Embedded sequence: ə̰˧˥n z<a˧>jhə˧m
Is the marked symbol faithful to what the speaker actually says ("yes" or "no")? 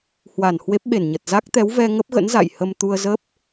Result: no